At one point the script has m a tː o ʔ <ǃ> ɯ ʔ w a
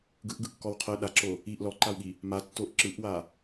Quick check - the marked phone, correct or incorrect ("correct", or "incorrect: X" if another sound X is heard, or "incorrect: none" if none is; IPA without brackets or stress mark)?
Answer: incorrect: ǁ